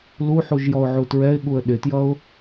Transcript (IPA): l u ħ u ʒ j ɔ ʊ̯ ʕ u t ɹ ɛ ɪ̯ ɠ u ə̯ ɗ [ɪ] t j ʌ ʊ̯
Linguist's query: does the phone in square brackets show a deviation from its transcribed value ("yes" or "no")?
no